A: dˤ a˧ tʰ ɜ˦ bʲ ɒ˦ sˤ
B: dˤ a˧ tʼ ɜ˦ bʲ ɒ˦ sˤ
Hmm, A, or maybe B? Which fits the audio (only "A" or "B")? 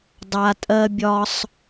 B